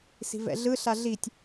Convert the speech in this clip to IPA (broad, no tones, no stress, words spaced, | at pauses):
si̤vɛ̰ɮɯ ɬaɮitʲ